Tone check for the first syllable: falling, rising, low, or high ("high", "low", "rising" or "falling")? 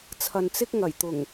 low